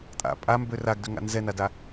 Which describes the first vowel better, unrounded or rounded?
unrounded